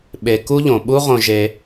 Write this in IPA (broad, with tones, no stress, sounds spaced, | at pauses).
ɓ e˨ k u˦ ʎ õ˩ ɓ u˦ ʁ õ˨ ʒ e˨